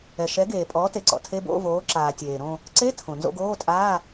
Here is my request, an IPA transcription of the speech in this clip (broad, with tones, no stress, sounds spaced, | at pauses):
ɛ˩ ʃ ɛ˩˥ ɡ eː˩ pʼ ɔː˩˥ t e˩ ǀ ɔ̰˩ tʰ e˧˥˧ b o̰˧˥˧ v oː˩˥ ǁ aː˩ tʲ eː˩ ɾ õ˦˨ | ǀ e˧˥˧ tʰ õ˩ n z o̰˦˨ ɡ oː˧˥˧ tʼ aː˧˥˧